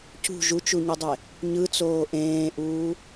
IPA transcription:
c ṳ ʒ u t͡ʃ u ɲ u dˤ e | ɲ ɯ t͡s oː ʔ ẽː ʔ uː

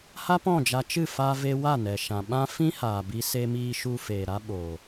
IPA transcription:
h a˦ p ɔ̃˦˨ d͡ʒ a˧ t͡ʃ ɨ˦˨ f a˧ v e˧ w a˦˨ n ɛ˨ ʃ ã˨ ɓ ã˦ f ĩ˦ h aː˨ b i˧ s e˧ m iː˧ ʃ u˧ f eː˨ ɾ a˦ ɓ oː˨

